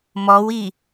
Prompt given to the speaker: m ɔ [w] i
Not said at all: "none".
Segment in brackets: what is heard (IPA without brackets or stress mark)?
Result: w